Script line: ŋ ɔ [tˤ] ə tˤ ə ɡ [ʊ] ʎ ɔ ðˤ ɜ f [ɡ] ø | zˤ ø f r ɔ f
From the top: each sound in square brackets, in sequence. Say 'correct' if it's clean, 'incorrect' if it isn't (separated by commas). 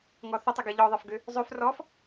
incorrect, incorrect, correct